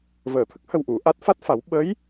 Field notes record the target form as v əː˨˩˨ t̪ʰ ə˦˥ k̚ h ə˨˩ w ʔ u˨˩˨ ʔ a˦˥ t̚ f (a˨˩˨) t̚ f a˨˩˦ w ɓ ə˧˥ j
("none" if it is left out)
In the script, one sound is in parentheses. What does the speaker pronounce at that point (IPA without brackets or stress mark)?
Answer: a˦˥